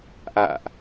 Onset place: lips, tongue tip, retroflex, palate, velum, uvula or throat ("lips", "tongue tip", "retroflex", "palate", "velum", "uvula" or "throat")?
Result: throat